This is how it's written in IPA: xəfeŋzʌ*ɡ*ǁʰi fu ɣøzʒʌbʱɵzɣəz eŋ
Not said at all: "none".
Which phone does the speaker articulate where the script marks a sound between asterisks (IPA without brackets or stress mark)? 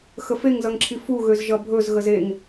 ŋ